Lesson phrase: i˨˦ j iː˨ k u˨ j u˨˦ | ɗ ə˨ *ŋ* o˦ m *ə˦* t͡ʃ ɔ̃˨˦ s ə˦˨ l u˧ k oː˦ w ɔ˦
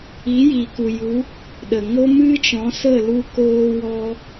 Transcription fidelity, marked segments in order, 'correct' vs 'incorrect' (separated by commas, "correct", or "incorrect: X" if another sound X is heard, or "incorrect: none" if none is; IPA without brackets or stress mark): correct, incorrect: ɨ˦